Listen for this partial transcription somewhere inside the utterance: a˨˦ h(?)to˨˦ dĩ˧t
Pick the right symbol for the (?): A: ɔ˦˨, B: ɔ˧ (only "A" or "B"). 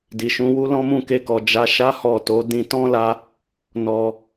A